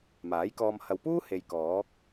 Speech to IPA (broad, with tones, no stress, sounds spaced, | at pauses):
m aː˨˥ j k ɔː˧ m h ɐ˨ w p uː˥ h e˨ j k ɔː˨˥ k̚